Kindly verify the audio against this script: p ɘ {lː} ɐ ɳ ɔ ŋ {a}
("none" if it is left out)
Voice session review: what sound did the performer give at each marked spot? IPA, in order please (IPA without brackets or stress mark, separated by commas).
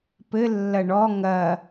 lː, ɐ